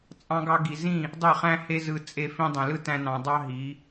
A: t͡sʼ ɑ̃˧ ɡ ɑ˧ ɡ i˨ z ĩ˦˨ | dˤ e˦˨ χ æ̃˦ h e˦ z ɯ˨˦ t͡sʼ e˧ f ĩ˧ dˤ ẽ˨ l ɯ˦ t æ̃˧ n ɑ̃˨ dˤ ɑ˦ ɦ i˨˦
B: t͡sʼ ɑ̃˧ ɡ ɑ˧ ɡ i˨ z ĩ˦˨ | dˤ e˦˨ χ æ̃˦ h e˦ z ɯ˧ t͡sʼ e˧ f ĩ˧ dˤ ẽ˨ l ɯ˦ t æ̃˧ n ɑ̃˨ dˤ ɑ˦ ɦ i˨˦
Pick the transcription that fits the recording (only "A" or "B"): B